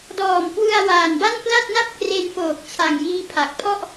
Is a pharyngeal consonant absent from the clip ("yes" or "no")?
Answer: yes